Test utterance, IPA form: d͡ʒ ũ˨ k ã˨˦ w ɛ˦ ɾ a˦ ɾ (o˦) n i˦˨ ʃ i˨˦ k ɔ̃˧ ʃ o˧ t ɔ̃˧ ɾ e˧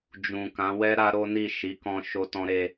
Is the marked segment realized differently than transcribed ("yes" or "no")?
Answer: no